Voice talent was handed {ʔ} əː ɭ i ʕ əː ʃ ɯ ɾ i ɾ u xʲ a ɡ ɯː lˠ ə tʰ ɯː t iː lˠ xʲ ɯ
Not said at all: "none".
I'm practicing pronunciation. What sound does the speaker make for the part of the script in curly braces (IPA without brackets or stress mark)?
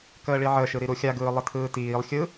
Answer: k